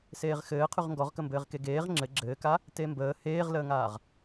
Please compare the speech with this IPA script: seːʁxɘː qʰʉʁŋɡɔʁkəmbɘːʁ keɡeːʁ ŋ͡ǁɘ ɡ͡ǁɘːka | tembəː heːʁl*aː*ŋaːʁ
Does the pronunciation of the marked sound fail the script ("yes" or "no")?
yes